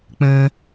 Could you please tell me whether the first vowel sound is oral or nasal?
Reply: nasal